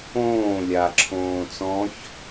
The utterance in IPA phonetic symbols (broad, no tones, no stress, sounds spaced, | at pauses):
õː lʲ a ǁʰ õː t͡s ɔ̃ ç